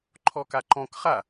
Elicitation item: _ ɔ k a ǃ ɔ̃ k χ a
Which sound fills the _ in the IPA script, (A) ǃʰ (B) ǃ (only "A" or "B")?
A